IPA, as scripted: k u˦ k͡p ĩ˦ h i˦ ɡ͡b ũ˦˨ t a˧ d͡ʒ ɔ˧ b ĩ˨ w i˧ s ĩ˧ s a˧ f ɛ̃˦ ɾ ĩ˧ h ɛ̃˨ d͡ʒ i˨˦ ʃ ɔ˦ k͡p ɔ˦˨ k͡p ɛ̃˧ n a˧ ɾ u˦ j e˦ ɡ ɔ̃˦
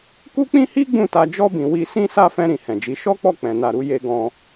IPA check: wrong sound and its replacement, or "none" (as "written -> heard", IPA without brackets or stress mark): none